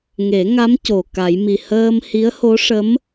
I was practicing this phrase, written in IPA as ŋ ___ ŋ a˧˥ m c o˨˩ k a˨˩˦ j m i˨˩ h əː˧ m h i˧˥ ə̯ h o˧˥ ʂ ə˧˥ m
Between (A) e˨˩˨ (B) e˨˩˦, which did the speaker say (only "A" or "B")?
B